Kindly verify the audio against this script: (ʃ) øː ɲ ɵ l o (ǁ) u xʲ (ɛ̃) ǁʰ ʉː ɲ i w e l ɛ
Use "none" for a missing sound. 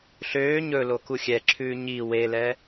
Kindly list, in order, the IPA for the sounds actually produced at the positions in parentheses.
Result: ɬ, k, ɛ

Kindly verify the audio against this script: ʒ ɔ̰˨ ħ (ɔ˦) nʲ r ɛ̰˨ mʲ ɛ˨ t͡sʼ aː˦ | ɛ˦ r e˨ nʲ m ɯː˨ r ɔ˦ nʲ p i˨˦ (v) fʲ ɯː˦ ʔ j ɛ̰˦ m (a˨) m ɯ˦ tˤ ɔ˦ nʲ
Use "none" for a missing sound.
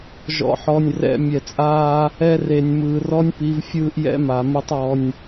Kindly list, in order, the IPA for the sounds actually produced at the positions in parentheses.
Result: ɔ˨, v, a˨

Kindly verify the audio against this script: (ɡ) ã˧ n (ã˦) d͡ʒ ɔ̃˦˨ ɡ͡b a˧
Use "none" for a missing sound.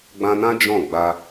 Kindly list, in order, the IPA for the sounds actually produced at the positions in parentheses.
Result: ɡ͡b, ã˦

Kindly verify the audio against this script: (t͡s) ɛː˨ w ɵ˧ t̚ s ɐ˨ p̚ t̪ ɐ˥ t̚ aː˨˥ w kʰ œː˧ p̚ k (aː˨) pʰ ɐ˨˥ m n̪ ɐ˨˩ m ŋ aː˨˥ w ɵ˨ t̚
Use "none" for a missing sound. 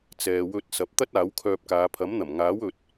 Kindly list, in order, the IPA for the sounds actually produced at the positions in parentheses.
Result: t͡s, aː˨˧

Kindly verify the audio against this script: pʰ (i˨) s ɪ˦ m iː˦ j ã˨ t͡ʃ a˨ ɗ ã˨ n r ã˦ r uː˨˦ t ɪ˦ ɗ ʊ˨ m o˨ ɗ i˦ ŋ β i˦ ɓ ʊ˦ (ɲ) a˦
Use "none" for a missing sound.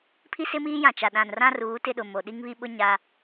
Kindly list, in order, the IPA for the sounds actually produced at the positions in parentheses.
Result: i˦, ɲ

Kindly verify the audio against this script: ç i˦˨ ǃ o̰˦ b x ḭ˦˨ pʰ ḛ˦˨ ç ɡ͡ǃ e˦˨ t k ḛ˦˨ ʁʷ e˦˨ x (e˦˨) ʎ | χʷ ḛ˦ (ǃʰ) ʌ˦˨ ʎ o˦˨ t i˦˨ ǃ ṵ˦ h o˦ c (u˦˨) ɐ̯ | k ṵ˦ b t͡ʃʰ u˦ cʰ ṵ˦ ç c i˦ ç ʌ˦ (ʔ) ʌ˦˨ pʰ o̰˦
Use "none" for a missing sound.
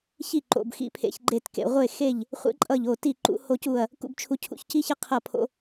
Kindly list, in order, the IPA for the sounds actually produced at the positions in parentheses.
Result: e˦˨, ǃʼ, u˦˨, qʰ

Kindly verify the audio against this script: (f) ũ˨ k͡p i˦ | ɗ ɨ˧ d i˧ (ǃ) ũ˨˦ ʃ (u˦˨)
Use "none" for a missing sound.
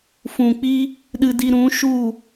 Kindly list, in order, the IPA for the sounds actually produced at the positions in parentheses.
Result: f, ɾ, u˦˨

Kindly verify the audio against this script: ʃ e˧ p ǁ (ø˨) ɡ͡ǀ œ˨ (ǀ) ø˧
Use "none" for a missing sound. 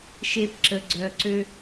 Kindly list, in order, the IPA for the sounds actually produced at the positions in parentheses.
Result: ə˨, ǀ

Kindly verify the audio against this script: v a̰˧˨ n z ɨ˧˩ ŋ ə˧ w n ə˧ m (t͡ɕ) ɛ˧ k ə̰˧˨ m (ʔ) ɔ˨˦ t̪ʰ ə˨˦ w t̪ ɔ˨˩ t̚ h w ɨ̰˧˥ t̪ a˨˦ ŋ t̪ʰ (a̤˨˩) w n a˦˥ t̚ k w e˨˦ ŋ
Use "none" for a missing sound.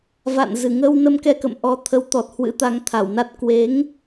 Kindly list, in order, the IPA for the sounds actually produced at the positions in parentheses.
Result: k, ʔ, a˧˩

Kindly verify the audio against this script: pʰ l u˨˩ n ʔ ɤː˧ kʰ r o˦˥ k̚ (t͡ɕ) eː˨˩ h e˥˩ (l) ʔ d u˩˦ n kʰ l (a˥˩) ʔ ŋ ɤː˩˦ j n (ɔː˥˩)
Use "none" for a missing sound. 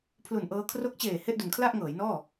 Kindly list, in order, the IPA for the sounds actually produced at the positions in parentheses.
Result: t͡ɕ, none, a˥˩, ɔː˥˩

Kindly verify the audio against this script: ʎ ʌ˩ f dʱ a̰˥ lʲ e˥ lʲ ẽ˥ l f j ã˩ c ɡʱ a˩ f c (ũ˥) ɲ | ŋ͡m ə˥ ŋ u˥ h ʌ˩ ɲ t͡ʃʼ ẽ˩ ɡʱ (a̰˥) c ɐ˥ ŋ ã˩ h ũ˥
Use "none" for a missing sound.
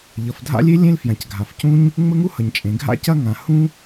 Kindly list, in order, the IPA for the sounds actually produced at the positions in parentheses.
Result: ũ˥, a̰˥

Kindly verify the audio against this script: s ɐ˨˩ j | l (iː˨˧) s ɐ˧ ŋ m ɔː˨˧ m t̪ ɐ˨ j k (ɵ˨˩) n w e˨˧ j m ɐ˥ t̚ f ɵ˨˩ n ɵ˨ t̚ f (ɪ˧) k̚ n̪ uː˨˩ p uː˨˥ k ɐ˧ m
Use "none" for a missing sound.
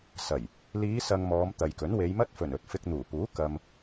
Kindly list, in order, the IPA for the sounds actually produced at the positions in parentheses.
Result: iː˨˧, ɵ˨˥, ɪ˧

